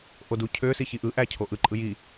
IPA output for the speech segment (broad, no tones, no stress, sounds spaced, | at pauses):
ʔ o d u cʰ ø s i ç i ʔ ɯ ʔ æ cʰ o ʔ ɯ ǃʼ ɯ j i